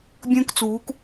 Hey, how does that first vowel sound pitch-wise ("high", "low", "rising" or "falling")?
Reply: high